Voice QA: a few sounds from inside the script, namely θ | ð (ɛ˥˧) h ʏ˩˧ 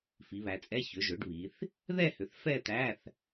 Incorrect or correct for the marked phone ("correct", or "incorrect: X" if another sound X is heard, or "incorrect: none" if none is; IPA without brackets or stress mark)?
correct